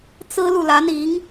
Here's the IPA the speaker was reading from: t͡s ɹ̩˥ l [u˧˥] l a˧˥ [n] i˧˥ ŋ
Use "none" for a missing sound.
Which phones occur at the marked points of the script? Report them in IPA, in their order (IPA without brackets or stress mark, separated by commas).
u˨, n